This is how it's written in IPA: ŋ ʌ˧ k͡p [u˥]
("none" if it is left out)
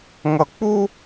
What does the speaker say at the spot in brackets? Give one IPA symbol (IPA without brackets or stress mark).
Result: u˥